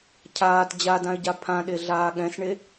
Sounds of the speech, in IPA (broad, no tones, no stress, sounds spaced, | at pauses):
cʰ aː t d͡ʑ a d ã ɪ̯ ɟ a pʰ ã ɗ e ɮ aː ɠ ɛ̃ s ɳ e